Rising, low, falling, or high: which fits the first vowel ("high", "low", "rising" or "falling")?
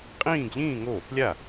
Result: falling